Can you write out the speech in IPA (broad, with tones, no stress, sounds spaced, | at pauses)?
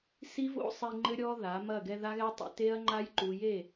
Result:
s i˦ v o̰˦ sˤ i˧ ŋ͡ǃ ɘ˦ ɾʲ ɔ˦ ð a˨˦ m ɐ˦˨ ɡ ɛ˧ ð a˦ ɣ ɛ˦ tˤ ḛ˧ t e˦ ɐ̯ ŋ͡ǃ a˦ j ǃ u˨ j e˦˨